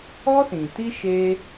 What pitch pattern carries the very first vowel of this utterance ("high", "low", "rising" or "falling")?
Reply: high